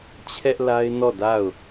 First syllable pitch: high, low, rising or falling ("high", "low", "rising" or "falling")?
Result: high